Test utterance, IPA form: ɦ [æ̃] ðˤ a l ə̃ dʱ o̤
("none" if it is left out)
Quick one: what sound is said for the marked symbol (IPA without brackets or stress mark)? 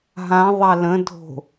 ã